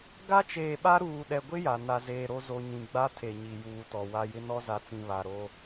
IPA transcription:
ɡ a˦ t͡ʃ eː˨ ɓ a˦ ɾ uː˨ ɗ ɛ˨ ɡʷ ɪ˦ j a˨ n a˨ z eː˨ ɾ o˦ z o˨ ɲ ĩ˨ ɡ͡b a˦ tʰ e˨ ɲ i˨ j uː˨ t ɔ˨ w a˦ j ɪ˦ n ɔ˦ z a˨ t͡s ĩ˨ β a˨ ɾ o˦

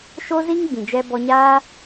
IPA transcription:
ʃ o˦ z i˦ ŋ ɡ͡b ĩ˨ d͡ʒ ɛ˧ b ɔ˧ ɲ aː˦

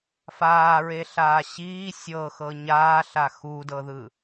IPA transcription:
f aː ɹ e ɬ aː ɕ iː sʲ ɤ x ɤ ɲ aː ɬ a x u d ɤ ð ɯ

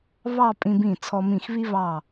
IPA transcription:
β ɑ˥˧ pʼ ĩ˧ b ĩ˧˩ t͡sʰ ɔ˧ m ĩ˧˩ x β i˥ β ɑ˧˩

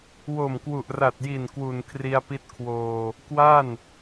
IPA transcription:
w o˨˩ m k w u˨˩ ʔ r a˨˩ t̚ j i˨˩ n k w u˨˩ n kʰ r i˧ a̯ p i˦˥ t̚ kʰ w oː˧ | k w a˥˩ n

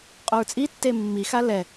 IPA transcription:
qʼ o ɹ t͡sʼ i tː e mː i x a l ɛ

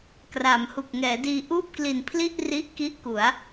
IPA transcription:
k r a˩˦ m h u˨˩ k̚ ŋ ɛː˩˦ d iː˧ ʔ uː˥˩ p̚ k l i˨˩ n pʰ l i˥˩ ʔ r i˦˥ ʔ k i˦˥ ʔ k u˩˦ a̯

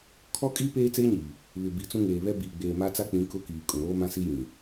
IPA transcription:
kʰ ɔ˦ kʼ iː˦ p eː˦ t͡s eː˦ ɲ iː˨ | β ɪ˨ b i˨ t͡s ũ˦ ŋ eː˨ β ɛ˦ b iː˨ ɡ͡b eː˨ m a˦ t͡s a˦ k͡p ĩ˨˦ k ʊ˦ k iː˨ kʼ ũ˨ ɾ oː˦ m ã˦ s i˦ j ĩ˨

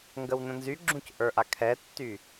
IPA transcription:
ŋ ɡ ə w n ə̃ n z y ɡ͡ǁ ũ c ʔ ə˞ ʔ a kʰ ɛ tː y

